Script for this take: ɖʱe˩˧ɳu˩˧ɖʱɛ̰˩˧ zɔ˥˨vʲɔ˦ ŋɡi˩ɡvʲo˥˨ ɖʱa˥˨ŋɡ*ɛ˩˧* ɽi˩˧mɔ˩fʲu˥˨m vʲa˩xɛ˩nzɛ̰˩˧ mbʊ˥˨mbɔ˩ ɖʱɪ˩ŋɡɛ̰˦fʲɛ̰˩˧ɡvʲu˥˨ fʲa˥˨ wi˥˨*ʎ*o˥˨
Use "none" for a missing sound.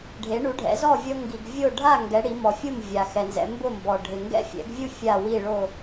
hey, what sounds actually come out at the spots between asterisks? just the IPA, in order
ɛ˩˧, ɭ

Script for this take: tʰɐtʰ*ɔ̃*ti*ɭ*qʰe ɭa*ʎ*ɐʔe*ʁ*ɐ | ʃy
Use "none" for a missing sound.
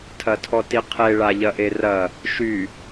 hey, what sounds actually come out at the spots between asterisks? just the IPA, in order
ɔ, none, ʎ, r

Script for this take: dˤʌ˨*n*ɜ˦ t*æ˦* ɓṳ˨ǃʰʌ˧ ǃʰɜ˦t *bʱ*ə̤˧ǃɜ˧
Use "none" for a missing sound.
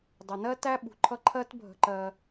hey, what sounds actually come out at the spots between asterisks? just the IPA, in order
n, æ˦, bʱ

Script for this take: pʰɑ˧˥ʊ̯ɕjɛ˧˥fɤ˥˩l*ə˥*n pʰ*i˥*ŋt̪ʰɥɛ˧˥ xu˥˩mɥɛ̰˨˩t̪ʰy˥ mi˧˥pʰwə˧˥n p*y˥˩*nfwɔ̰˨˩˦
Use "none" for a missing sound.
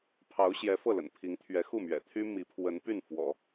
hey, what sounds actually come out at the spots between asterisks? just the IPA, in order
ə̰˨˩, i˧˥, y˥˩

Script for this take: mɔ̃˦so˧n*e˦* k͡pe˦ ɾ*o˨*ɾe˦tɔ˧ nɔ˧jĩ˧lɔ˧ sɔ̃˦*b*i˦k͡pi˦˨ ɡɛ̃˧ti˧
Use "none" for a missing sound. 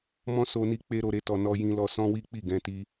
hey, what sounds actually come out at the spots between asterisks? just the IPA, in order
i˦, o˧, w

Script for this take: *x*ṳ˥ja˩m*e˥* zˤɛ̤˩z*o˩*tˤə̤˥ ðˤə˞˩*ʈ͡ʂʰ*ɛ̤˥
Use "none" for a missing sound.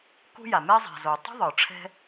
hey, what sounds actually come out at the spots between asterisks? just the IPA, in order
k, e˥, o˩, ʈ͡ʂʰ

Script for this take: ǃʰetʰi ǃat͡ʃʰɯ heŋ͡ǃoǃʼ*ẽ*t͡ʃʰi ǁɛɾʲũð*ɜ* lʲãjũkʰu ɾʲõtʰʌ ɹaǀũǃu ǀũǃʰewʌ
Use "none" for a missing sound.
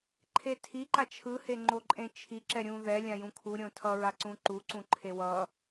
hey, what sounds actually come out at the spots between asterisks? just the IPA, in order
ẽ, ɛ

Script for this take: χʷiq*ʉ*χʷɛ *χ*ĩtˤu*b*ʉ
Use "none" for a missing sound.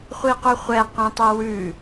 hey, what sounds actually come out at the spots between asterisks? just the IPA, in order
ʉ, q, w

